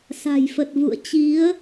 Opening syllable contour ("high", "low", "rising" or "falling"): low